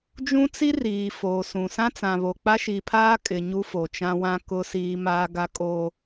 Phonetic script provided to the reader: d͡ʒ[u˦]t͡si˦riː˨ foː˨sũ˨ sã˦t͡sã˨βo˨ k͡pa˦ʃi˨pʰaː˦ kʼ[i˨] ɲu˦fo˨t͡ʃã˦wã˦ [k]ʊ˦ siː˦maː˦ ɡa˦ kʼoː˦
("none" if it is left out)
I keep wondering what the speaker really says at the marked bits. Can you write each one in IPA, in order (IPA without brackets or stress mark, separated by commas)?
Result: ũ˦, ɪ˨, k